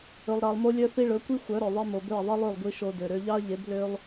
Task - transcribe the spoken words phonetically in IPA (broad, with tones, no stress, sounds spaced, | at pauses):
ɵ˧ lˠ ɾ ɑ˧ lˠ m o˦ lʲ œ˦ θ i˦ ɭ ɵ˨˦ kʷ i˦ xʷ œ˨˦ ɾ œ˨ ðˤ i˧ m o˨ b ø˦˨ ɐ̯ ðˤ i˦ lˠ ø˦˨ lˠ ɡʷ i˦ ʃ o˧ d ø˨ ɾ ø˧ ʎ ɑ˦ ɐ̯ ʎ e˨˦ b l ø˦ lˠ